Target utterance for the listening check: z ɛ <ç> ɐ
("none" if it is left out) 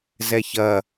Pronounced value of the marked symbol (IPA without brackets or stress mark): ç